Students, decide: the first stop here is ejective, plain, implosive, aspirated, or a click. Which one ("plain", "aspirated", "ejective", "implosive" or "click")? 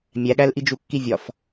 implosive